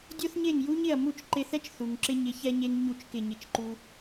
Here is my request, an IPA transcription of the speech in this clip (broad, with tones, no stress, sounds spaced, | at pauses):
dʲ o˥ θ ɲ e˥˩ ŋ j u˥ ɲ ɪ˥˩ ɐ̯ m u˥˩ t͡ʃ ǃ ɪ˧ θ ɛ˥ t͡ʃ θ u˩ ŋ ǁ ɪ˧ ɲ ɪ˩˥ ç ɛ˧ ɲ e˧ ŋ ɲ u˥˩ t͡ʃ k ɪ˥˩ ɲ ɪ˥˩ t͡ʃ ǃ u˥